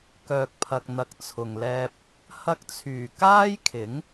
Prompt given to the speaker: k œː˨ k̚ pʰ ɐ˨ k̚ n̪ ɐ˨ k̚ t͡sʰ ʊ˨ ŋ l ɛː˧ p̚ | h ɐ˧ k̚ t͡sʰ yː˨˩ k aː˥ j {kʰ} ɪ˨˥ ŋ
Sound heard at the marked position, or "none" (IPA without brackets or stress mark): kʰ